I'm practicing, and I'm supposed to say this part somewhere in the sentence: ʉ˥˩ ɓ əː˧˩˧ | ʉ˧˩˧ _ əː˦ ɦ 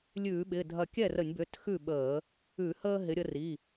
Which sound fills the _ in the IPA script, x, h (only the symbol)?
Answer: h